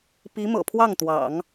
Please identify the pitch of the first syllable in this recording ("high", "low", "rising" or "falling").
rising